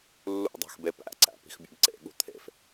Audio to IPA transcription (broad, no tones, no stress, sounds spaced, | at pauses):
lː ṵ dˤ æ̤ x b e p æ̰ ǀ æ̰ p i̤ x bʲ o̰ b ǀ ḛ ɠ ṳ t̪ʰ ḛ f